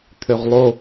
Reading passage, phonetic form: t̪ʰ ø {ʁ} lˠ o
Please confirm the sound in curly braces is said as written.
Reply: yes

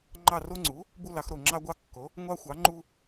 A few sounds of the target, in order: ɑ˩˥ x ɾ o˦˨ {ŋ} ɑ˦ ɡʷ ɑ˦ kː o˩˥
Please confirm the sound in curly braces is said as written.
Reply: no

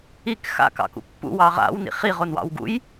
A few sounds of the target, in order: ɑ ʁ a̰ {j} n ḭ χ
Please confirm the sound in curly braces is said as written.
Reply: no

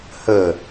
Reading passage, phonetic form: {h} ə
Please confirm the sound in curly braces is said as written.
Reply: yes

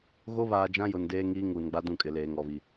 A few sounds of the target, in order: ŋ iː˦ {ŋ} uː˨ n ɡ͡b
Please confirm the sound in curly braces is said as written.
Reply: yes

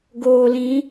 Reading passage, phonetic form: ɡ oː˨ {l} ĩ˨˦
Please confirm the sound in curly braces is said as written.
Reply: yes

